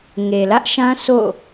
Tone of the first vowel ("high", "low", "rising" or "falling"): low